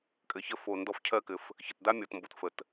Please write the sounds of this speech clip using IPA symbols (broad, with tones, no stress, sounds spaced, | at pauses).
kʼ ɘ˩ ç ə˧ f o˩ n d ɔ˧ f cʰ ɜ˧ k ɘ˩ f | ç ə˩ t d a˥ mʲ ɔ˩ t m b o˩ t f ə˩ t